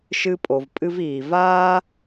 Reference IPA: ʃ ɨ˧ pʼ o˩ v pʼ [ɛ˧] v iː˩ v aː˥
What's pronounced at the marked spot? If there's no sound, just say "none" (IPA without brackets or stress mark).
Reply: ɨ˧